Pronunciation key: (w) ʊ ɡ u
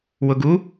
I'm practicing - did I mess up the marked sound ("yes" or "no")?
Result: no